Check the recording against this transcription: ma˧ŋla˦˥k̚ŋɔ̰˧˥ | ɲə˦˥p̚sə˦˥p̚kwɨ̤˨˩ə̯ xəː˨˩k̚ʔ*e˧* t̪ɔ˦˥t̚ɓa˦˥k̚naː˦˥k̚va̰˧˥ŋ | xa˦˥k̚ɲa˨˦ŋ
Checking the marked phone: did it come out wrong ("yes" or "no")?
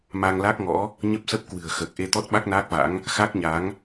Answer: no